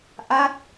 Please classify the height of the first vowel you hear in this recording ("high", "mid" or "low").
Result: low